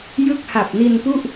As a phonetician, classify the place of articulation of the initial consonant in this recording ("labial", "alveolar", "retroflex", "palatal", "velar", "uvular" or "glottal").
palatal